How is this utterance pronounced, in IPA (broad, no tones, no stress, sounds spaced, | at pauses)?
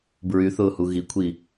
b ɹ y θ ʊː h u ɣ i kʷʰ i